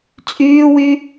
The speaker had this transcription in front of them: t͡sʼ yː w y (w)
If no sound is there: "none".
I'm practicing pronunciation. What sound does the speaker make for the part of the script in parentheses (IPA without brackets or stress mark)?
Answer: none